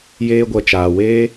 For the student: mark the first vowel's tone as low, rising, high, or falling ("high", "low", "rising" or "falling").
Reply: high